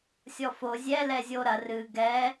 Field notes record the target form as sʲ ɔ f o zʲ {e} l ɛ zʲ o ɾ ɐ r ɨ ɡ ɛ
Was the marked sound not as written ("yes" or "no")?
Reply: yes